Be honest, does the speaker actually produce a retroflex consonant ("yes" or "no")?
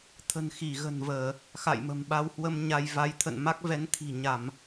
no